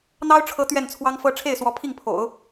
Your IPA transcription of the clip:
n̪ ɑ˥ ʊ̯ ʈ͡ʂʰ ɤ˧˥ t̪ ɥ ɛ˥˩ n t͡sʰ w ɑ˥ ŋ f ɤ˥ ʈ͡ʂʰ e˥˩ ɪ̯ s w ɔ˧˥ pʰ i˥˩ ŋ pʰ o̰˨˩˦ ʊ̯

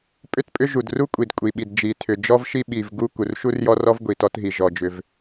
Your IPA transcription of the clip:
pʼ ʏ˥ t pʼ ʏ˥ ʒ u˩ d r u˥ kʷʼ i˩ d kʷʼ i˩ ɓ i˩ d d͡ʒ i˩ tʰ ʏ˩ d͡ʒ ɔ˥ v ʃ i˥ ɓ i˩ v ɡ u˥ k u˩ r ʃ u˥ r j ɔ˥ r ɔ˥ v ɡʷ i˩ t ɔ˥ t ɦ i˩ ʒ ɔ˩ d͡ʒ ʏ˩ v

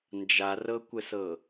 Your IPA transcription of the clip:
n d͡ʒ a r ɤ kʷ ə s ɤ

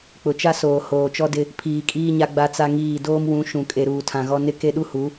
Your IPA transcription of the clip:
k͡p ʊ˨ t͡ʃ a˦ s oː˨ h oː˨ t͡ʃ ɔ˦ d ɪ˦ | pʰ iː˨ kʼ iː˦ ɲ a˦ ɡ͡b a˦ t͡s a˦ ŋ iː˦˨ d oː˦ m w ũ˨˦ ʃ ũ˨ kʼ e˨ ɾ uː˨ tʰ ã˨ ɣ ɔ˦ n ɪ˦ k e˦ ɗ u˦ h u˨˦

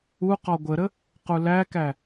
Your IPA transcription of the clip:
u q ɔ ɡʷ ə ɾ ə | q u l æ k æ

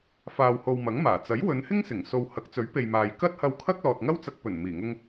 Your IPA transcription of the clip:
f aː˨ w h o˨ w m ɐ˨˥ ŋ m aː˨˩ t͡s ɐ˨˥ j w ɵ˨˧ n h ɪ˥ ŋ s ɪ˨˩ ŋ s o˨ w h ɐ˨˥ k̚ t͡s ɵ˨˥ ɥ p e˨ j m aː˨ j k ɐ˥ t̚ h ɐ˧ w kʰ ɐ˥ k̚ l ɔː˨ t̚ ŋ ɐ˥ w t͡s ɐ˧ k̚ p ɵ˨˩ n m iː˨˩ ŋ ʊ˧ ŋ

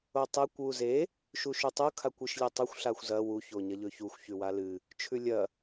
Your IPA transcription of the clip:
o tˤ e kʷ w u z e | ʃ u ʃ ʉ tˤ u kʰ a kʷ ɨ ʃ lʲ e tˤ o xʷ ɬ a xʷ z ɐ w u ç o ɲ ɐ ʎ ɵ ç u xʷ ç ʉ w a l ɨ | t͡ʃʰ ʉ lʲ ɐ

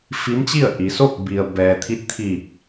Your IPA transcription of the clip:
f i˧˥ m t͡ɕ i˥˨ ə̯ ʔ i˩˧ s o˥˨ k̚ b i˩ ə̯ b ɛː˩ t̪ʰ i˧˥ t̚ t̪ʰ iː˧˩ k̚

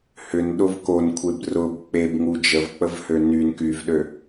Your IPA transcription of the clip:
h ʏ n ɗ ʊ v k o n kʷʰ e b r ʊ b k͡p e b ŋ u d͡ʒ ə v k͡p ə v h ø n y n k y v ɗ ø

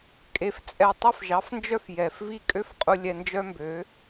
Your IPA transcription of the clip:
kʼ e˧ f t͡sʼ ɛ˦˨ tˤ ɵ˦˨ f ʒ ɑ˨˦ f n d͡ʒ œ˦ f j ɛ˨ f v i˦ kʼ ø˦ f qʼ u˧ lʲ ɛ˧ n d͡ʒ œ˦ m b ø˨˦

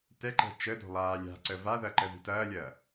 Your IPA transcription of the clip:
t ɛ ǃ ɛ̤ t͡ʃ ə d o̤ lˠ aː lʲ a̤ ǀ ə v a ð ɐ ǃ ə ð i̤ t ɐː lʲ ɐː

